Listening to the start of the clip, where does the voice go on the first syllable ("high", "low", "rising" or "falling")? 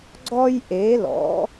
high